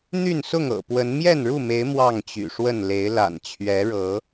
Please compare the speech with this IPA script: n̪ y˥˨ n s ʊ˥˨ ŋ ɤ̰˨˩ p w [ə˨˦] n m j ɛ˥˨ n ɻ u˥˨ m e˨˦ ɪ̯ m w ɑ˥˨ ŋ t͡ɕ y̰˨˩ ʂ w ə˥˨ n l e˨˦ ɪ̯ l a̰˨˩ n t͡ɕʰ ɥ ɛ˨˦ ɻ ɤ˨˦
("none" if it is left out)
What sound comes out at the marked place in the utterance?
ə˨˦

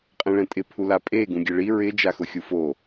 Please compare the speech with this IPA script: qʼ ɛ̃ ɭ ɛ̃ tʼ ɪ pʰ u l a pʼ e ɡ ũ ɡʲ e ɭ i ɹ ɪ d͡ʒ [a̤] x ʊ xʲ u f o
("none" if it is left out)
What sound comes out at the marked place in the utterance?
a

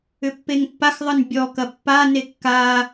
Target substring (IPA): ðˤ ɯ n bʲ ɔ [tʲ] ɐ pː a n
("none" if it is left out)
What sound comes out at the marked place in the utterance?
k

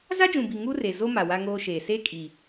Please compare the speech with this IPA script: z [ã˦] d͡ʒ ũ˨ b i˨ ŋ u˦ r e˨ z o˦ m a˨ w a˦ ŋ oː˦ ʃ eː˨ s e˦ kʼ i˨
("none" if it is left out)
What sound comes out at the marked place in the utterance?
a˦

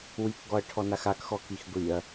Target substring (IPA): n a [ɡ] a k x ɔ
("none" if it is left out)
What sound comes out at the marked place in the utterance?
x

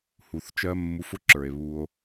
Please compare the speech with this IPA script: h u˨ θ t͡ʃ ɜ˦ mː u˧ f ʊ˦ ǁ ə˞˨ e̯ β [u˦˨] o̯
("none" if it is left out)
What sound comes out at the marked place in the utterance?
u˧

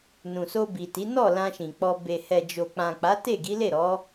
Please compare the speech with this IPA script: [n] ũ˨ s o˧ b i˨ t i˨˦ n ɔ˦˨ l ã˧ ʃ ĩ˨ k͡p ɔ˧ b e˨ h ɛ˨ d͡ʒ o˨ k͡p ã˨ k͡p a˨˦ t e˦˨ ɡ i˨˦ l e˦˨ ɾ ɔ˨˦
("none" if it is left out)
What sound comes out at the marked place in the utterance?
n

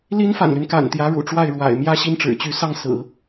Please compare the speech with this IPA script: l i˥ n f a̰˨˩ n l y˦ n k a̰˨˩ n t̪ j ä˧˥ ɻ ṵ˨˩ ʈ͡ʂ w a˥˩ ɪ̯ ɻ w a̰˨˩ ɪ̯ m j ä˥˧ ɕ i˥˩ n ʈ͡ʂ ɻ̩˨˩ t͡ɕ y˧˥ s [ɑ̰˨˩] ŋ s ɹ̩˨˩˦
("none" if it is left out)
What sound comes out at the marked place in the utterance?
ɑ˥˩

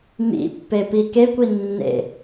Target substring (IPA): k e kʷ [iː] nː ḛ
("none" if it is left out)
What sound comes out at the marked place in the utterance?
i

